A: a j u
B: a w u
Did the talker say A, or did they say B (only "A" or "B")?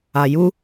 A